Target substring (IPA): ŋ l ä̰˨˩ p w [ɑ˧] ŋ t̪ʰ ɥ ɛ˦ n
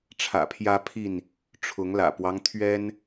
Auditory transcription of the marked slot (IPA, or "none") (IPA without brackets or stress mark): ɑ˦